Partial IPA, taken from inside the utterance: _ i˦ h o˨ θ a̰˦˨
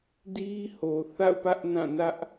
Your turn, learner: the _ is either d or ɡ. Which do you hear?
d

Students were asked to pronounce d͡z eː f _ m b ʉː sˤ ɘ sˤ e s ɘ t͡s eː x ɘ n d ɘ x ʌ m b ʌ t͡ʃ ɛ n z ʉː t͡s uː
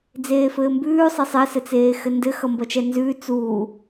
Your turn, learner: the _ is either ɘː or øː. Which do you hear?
ɘː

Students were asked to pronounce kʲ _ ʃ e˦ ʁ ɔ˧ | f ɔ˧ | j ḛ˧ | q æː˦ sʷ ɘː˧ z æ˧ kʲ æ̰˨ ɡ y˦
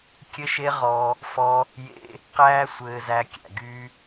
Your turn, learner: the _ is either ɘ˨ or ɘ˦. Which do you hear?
ɘ˦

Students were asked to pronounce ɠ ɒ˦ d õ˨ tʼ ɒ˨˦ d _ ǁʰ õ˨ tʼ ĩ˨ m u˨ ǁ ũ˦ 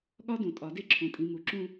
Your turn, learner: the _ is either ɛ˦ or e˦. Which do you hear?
e˦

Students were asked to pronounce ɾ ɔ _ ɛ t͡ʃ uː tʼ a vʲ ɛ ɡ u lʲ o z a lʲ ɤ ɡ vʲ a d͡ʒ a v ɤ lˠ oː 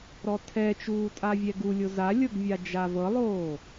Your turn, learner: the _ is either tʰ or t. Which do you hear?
tʰ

